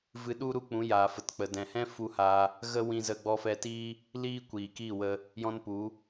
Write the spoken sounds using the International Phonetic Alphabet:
v ɨ˧ ɗ u˦ ɾ u˦ k͡p ũ˨˦ j aː˨ f ə˨ t k͡p ə˨ d ɛ̃˨ h ɛ̃˦ f u˧ h aː˧ | ɣ ə˦ w ĩ˧ z ə˧ ɡ͡b ɔ˧ f ɛ˧ t iː˦ | l iː˦ kʷ iː˨ k iː˦˨ w ə˧ | j ɔ̃˧ n p u˨˦

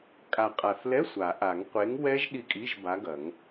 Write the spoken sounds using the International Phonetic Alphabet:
kʼ a˨˩ qʼ a˨˩ θ l ɛ˧˥˧ sʷ a˨˩˦ ʔ a˨˩˦ ŋ qʷ e˨˥ ŋ w ɛ˦˥ ʒ ɗ i˦˨ kʼ i˧˥˧ ʒ b a˨˥ ɡ ɐ˨˩˦ ŋ

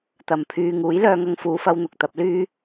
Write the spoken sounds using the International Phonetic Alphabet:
t̪ ɐ˨ m pʰ yː˧ ŋ uː˨˥ j l œː˧ ŋ ɐ˧ ŋ f uː˨˧ f ɐ˧ w n̪ ʊ˨ k̚ t̪ ɐ˥ p̚ l yː˥

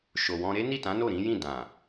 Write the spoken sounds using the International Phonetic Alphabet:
ʃ o˨ w ɔ̃˧ ɾ e˦ n i˦˨ t ã˨˦ n o˦˨ ɾ ĩ˨˦ j ĩ˦˨ d ã˨

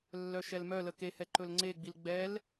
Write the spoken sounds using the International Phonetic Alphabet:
lː œ ʃ ɛ l m œ l ə k e h ɛ ǃ ɵ l ŋ͡ǀ e ɡ͡b i l ɡ͡b ɛ l

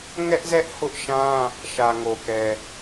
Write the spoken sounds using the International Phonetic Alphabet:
ŋ ɛ˦ ʔ z ɛ˦ ʔ h ʊ˦ ʔ ʃ ã˦ | ʃ ä˨ ŋ o˨ k ɛ˨

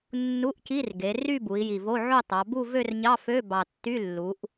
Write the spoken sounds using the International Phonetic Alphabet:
nː u˧˥˧ ʔ c i˧˥˧ r ɡ e˩˧ r y˥˧ b u˩˧ i̯ j i˨˩ v o˧˥˧ ʕ o˥˧ tˤ ɑ˩˧ b u˥˧ v ø˥˧ r ɲ ɑ˧˥˧ f ø˧˥˧ b ɑ˨˩ tː y˧˥˧ lː u˩˧ ʔ

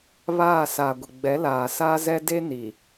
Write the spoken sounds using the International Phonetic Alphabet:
β aː˦˨ s a˨ ɡʷ ɪ˨ ɡ͡b ɛ˨˦ l aː˨ s a˦ z ɛ˦ d e˦ n i˨

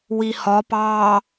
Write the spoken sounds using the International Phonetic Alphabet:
w i h ɒ p ɑ

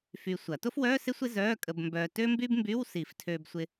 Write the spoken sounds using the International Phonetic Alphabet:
f y˧ sʷ ɐ˨˩˦ t o˥ f w œː˧˥˧ s ɪ˥ sʷ ɪ˥ z œː˧˥˧ kʼ ə˧ b m b œː˧ t ø˥ m b y˥ b m b y˧˥˧ w s i˨˩˦ f tʰ øː˧ b sʷ ɪ˧

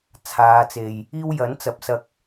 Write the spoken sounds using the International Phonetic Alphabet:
t͡sʰ aː˨˧ t͡s e˨ j | iː˥ w j ɐ˨˥ n t͡s ɐ˨ p̚ s ɐ˧ k̚

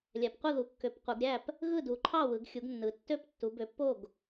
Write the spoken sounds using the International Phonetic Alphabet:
lʲ æ˨˦ p qʷ ɯ˥˨ ð u˨˦ kː ø˨˦ p qʷ ɯ˨˦ ɡ ɾʲ æ˥˨ p | ɣ ɯ˥˨ d u˨˦ ǃʰ ɑ˥˨ w ɯ˨˦ ɡ xʲ u˨˦ ɡ nː ɯ˨˦ tː ø˥˨ p tː u˨˦ b ø˨˦ pː o˥˨ ɡ

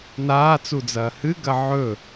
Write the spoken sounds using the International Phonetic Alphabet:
n aː t͡s u d͡z ɐː h ɨ ɡ ɐ ʕ ɵ

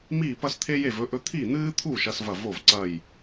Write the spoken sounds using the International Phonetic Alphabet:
m iː˥˨ p ɐ˥ s t̪ʰ e˥ j e˥˨ v ɵ˥ ʔ ɵ˥ t̪ʰ i˥˨ n̪ ɨː˥ t̪ʰ u˥˨ ʃ ɐ˥ s v ɐ˥˨ v o˥˨ v ǀ ɐ˥˨ j

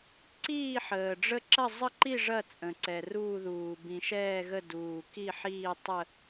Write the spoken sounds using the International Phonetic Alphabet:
ǀ iː˦˨ ħ əː˩ ɖ͡ʐ ə˦˨ ǁ ɐ˦˨ zˤ ə˦˨ ǃ i˦˨ ʐ ɐ˦˨ t͡sʼ ə̃˩ ǀ ɛ˩ r uː˦˨ ð uː˩ b ĩ˩ ʃ ɛː˦˨ ɣ ə˦˨ d uː˩ k i˦˨ ħ iː˦˨ tˤ ə˦˨

